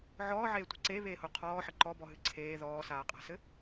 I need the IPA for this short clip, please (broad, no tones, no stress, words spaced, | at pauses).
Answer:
ʕɔːʕeːtʷi̤ ǀeβeːho qʰɔːħɘ ǃɔbɔɦɨ ǀʰeː ðɔːsaːqʼa̤sɘ